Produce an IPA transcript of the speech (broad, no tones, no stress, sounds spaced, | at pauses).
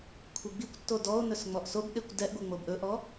kʷʰ i ɡ͡b i kʷ tː o d ɔ o̯ n ɵ s ŋ͡m ɔ ʔ s o b ɗ e kʷ d ɛ ʔ ɡʷ e ŋ͡m o b ʔ ɵ ʔ ɔ